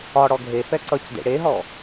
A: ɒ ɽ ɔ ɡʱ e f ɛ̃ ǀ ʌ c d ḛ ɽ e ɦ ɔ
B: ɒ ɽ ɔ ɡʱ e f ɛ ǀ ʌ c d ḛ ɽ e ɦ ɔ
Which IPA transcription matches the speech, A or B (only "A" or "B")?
B